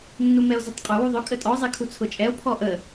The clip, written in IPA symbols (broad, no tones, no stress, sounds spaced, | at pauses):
nː u m ɛ o̯ z ʊ tˤ qʼ ʊ w u ðˤ ʊ kʼ ə tʼ ɔ zˤ ɛ kʰ u t͡sʰ ʊ t͡ʃʼ ɛ o̯ pʰ ɔ ʔ ə